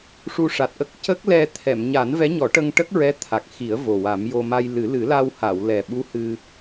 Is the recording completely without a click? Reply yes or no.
yes